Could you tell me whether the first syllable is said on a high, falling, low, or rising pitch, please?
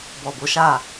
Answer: low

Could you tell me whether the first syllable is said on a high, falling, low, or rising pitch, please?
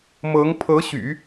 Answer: rising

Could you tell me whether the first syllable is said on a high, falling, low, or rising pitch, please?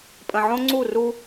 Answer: low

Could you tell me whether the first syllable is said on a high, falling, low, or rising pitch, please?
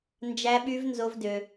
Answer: high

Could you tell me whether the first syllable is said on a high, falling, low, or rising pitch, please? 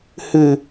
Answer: low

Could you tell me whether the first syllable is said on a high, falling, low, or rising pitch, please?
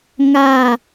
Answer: falling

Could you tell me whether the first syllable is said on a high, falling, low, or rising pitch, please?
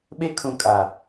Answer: high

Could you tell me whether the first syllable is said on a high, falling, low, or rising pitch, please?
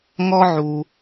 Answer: high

